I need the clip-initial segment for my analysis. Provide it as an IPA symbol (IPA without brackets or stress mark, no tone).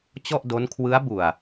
t͡ɕ